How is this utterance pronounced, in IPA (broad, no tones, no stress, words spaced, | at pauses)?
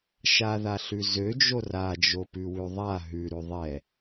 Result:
ʃaðaɬʉ zød͡ʒo rad͡ʒopʉwʉ ðˤa ɦʉɾʉ ðˤɛ